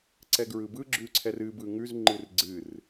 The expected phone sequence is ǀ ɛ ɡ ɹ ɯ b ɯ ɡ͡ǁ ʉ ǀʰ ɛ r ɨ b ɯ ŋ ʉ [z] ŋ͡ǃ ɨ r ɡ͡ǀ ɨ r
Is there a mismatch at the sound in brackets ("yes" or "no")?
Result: no